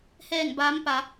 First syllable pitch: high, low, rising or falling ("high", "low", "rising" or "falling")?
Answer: falling